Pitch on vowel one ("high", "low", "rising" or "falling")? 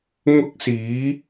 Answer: high